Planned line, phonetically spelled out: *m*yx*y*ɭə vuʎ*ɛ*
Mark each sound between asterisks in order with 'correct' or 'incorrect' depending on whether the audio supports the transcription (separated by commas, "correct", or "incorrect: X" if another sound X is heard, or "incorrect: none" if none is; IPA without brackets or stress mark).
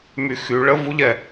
correct, correct, correct